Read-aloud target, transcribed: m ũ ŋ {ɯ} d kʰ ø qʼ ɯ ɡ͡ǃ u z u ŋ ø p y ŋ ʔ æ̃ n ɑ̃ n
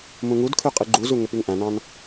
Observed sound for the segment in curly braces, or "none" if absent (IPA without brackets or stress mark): u